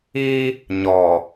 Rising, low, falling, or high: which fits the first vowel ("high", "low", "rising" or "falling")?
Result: high